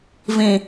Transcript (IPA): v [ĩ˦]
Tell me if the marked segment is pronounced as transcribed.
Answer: no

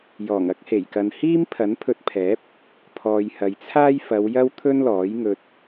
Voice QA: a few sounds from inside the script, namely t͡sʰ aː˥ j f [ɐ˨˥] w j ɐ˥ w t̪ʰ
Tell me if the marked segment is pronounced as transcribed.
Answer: no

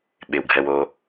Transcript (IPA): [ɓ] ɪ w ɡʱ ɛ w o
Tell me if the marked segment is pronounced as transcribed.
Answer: yes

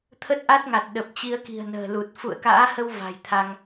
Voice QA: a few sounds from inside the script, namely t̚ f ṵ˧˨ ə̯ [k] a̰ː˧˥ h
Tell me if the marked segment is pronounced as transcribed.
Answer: yes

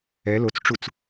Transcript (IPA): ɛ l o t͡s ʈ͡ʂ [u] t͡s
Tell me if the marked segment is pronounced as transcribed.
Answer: yes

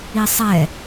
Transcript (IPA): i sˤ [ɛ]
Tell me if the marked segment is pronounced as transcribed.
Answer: yes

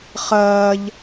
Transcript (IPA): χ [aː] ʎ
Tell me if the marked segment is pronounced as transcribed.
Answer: no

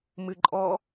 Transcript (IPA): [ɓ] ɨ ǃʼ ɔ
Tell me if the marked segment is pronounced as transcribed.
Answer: no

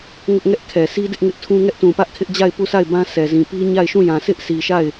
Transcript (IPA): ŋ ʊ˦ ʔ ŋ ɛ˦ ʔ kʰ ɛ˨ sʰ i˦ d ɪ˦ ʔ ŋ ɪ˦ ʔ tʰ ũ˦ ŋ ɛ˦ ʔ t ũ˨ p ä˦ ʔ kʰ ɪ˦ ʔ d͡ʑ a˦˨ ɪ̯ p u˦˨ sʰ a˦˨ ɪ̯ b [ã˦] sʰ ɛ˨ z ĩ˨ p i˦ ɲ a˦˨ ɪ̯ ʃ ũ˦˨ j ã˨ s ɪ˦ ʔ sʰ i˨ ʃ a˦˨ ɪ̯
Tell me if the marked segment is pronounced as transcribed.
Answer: yes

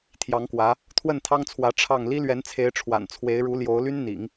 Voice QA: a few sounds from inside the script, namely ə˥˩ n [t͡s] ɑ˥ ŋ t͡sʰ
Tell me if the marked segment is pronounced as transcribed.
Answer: no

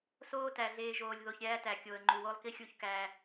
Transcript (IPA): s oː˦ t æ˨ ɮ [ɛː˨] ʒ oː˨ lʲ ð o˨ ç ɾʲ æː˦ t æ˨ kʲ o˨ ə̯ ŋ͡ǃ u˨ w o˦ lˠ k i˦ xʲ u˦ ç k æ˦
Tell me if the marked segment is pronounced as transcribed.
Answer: no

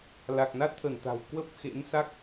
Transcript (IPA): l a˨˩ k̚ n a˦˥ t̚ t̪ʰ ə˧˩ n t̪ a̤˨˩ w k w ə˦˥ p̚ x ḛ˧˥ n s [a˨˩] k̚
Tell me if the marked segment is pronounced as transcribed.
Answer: no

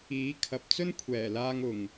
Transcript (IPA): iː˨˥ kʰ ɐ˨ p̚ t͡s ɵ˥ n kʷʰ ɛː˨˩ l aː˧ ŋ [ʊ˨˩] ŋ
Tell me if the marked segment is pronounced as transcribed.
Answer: yes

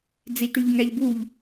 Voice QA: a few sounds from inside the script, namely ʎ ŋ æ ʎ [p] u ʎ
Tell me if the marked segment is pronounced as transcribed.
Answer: no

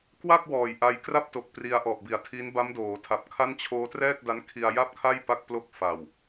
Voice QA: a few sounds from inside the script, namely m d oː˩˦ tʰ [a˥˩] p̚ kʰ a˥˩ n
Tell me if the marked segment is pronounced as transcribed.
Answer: no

